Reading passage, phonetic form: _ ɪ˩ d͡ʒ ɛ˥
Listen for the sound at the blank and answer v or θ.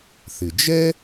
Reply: θ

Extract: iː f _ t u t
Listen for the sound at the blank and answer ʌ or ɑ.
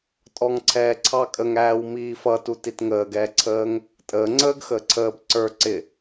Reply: ʌ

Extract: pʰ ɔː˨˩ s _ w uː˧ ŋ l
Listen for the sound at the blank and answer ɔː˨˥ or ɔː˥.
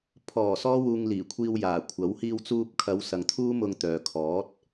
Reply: ɔː˥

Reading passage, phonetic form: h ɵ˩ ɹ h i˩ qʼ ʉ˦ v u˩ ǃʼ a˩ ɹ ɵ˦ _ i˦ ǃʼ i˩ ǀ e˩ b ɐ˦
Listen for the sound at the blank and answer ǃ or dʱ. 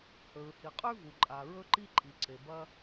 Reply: ǃ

